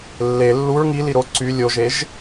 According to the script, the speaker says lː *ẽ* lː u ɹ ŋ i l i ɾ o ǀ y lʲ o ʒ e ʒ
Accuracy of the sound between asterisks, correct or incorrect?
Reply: incorrect